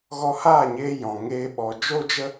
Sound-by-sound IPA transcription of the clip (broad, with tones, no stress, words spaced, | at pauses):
ɣɔ˧haː˦˨ɲeː˧ jɔ̃˨ ŋeː˧ɓɔ˨ d͡ʒo˦d͡ʒə˦